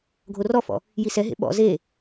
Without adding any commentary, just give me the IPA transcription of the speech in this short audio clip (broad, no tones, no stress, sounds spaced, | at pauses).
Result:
ɡʱ o r ɔ f ɔ̰ | j i s ɛ ɦ ḛ ɓ ɔ̰ z e